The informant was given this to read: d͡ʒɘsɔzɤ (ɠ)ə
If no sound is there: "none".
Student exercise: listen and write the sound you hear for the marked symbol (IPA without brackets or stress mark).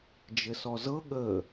ɠ